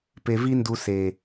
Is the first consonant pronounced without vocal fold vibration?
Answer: yes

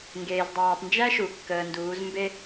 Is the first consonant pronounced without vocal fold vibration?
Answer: no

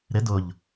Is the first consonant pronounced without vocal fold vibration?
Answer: no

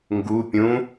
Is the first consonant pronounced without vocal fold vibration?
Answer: no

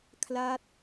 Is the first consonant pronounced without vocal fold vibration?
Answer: yes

